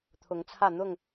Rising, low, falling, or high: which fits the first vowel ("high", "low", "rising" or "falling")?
rising